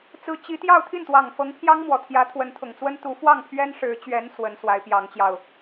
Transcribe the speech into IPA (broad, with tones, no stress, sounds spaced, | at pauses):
t͡s ɹ̩˧˥ t͡ɕ i˧˥ t̪ j ɑ˥˧ ʊ̯ t̪ʰ i˥˩ n t̪ w ɑ˨˩ ŋ f ɤ˧˥ ŋ pʰ j ɑ˥ ŋ m w ɔ˨˩ t̪ʰ j ä˧˥ t̪ʰ w ə˧˥ n t̪ʰ ʊ˨˩ ŋ t͡s w ə˥ n t̪ u˧˥ f w ɑ˥˩ ŋ pʰ ɥ ɛ˥ n ʂ ɻ̩˧˥ t͡ɕ ɥ ɛ˧˥ n s w ə˧˥ n s w a˧˥ ɪ̯ p j ɑ˧˥ ŋ t͡ɕ j ɑ˧ ʊ̯